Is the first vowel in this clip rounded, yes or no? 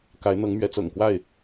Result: no